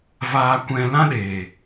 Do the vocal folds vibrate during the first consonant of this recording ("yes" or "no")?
yes